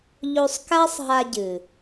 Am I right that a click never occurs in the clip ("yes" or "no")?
yes